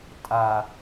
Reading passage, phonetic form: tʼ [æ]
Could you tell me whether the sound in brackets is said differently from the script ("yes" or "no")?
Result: yes